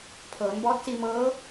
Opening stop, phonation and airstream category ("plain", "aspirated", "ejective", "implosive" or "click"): aspirated